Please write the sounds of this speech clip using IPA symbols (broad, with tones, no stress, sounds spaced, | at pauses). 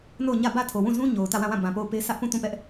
n o˦˨ ʊ̯ ɲ ä˦˨ b ä˦˨ tʰ o˨ w ũ˦˨ z ũ˦ ɲ o˨ ʊ̯ t ä˦˨ w ã˦˨ w ã˦˨ b ã˨ p o˦˨ ʊ̯ p e˦ sʰ ä˦ ʔ p ũ˦˨ t ũ˦˨ p ɛ˦ ʔ